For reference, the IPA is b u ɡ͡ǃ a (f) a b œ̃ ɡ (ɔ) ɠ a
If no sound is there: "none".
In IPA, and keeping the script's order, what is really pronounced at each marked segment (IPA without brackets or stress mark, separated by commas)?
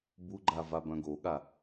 v, o